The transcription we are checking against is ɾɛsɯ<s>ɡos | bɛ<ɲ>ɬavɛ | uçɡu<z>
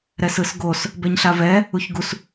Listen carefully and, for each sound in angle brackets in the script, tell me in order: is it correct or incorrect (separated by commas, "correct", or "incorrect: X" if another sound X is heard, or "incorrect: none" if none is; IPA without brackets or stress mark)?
correct, correct, incorrect: s